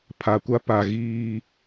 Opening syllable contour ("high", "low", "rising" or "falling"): low